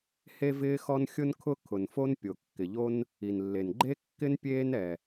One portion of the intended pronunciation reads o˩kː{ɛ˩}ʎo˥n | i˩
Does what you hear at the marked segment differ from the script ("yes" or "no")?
yes